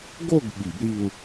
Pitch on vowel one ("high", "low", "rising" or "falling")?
falling